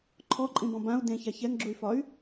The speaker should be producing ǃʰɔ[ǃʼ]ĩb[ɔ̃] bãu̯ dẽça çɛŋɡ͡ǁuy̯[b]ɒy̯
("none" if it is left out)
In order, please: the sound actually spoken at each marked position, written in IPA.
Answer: ǃʼ, ɔ̃, f

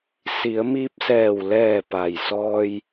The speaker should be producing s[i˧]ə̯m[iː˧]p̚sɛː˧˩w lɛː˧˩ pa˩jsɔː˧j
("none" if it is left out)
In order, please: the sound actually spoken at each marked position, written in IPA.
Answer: i˩˧, iː˧

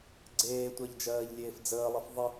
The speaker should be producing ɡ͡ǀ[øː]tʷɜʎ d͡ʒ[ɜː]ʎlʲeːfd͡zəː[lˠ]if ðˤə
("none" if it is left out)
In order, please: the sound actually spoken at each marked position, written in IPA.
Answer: eː, ɜː, lˠ

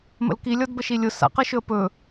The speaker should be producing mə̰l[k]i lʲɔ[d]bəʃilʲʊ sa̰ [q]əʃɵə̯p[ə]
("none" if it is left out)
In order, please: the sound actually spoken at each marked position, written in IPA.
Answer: k, d, q, ɵ

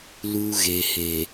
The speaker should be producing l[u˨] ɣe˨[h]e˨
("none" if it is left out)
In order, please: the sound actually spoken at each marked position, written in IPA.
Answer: u˦, h

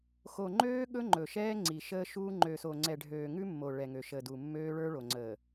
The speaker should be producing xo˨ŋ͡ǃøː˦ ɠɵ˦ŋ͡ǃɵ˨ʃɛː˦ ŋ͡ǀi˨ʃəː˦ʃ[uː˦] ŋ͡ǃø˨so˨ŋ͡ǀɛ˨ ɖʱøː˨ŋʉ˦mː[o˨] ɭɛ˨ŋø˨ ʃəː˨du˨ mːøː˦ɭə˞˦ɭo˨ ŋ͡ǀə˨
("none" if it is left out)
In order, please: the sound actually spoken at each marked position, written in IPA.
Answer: uː˦, o˨

